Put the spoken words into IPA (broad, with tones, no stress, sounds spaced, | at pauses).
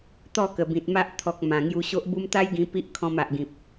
t̪ ɔ˥˧ k ə˨˩ b ĩ˨ t̚ m a˦ ʔ t̪ʰ ɔ˨ k̚ m ã˨˩ ŋ j u˧ ɕ o˦ ʔ b u˦ m t̪ a˦ j ɡ ĩ˧ p i˦ ʔ kʰ ɔ̃˧ m a˨ ʔ ɡ ĩ˨ p̚